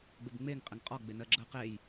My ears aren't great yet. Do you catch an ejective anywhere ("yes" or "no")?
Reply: yes